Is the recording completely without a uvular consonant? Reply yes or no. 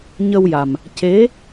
yes